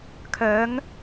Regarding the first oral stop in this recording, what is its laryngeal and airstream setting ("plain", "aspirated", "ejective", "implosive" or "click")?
aspirated